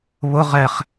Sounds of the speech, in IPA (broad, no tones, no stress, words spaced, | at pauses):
βʊ ʁɛχ